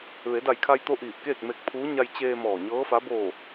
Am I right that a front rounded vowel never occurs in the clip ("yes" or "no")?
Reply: yes